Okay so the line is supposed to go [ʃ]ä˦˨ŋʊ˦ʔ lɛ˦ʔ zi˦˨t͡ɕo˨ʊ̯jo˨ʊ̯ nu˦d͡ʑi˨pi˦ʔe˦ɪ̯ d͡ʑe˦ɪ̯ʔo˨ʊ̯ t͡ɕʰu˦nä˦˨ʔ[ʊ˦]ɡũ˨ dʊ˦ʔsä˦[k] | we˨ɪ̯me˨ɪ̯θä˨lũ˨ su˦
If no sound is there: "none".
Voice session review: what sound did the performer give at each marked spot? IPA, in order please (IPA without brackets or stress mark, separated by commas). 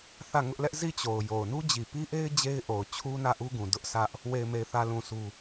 θ, u˦, ʔ